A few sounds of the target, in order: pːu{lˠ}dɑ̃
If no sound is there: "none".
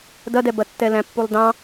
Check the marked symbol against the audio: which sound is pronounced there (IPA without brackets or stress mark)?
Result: lˠ